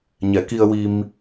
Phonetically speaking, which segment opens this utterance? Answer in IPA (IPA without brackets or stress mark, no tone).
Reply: ɲ